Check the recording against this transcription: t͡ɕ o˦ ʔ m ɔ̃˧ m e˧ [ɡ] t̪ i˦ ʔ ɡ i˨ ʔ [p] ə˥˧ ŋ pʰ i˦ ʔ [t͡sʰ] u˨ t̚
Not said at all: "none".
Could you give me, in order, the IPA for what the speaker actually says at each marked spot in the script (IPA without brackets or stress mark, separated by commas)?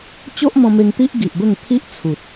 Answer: ŋ, b, t͡sʰ